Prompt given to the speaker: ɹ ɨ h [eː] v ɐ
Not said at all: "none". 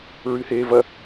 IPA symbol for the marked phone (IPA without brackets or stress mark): eː